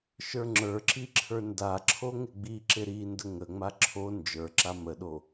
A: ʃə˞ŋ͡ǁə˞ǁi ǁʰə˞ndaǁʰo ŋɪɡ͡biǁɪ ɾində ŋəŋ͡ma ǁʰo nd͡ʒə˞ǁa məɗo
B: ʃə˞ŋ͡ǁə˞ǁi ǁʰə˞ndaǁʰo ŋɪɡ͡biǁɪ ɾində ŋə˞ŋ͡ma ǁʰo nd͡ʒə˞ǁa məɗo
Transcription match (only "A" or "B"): A